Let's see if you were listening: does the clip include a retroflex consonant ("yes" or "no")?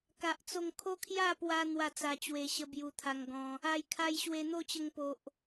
no